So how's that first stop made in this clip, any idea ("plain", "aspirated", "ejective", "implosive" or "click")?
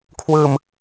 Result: aspirated